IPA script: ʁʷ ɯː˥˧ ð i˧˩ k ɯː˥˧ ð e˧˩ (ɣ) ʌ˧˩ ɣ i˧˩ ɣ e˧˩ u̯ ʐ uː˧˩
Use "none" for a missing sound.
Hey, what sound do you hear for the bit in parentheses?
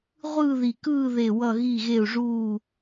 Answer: w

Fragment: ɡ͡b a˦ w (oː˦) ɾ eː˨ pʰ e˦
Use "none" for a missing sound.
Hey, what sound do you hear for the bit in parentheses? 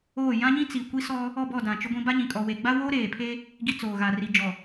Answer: oː˦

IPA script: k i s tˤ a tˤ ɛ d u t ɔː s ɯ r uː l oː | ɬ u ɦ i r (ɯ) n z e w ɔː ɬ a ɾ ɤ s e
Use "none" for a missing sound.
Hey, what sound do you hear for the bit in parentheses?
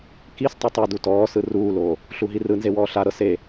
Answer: ɯ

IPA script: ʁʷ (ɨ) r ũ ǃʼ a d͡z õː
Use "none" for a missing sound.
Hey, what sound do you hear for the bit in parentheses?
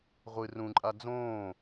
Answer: ɨ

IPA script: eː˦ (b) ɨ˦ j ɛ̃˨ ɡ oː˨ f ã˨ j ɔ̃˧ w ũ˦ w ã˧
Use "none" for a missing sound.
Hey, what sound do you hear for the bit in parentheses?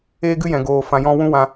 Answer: ɡ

